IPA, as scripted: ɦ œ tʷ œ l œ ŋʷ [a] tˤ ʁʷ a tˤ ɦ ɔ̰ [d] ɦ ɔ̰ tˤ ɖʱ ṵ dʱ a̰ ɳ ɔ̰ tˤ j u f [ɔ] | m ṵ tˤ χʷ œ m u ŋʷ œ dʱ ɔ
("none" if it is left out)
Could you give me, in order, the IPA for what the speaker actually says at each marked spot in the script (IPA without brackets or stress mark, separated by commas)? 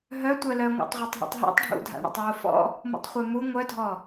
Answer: a̰, tˤ, ɔ̰